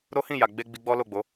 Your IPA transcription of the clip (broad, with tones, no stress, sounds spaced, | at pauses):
ɾ o˦ h ĩ˦˨ j a˨ ɡ͡b e˧ ɡ͡b i˧ ɡ͡b ɔ˦ l o˦˨ ɡ͡b o˨˦